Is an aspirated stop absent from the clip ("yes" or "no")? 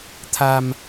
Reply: no